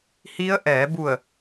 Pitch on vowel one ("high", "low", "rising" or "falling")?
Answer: rising